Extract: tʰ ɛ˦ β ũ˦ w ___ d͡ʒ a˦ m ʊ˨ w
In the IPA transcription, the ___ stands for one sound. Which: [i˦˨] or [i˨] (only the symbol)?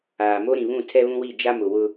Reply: i˦˨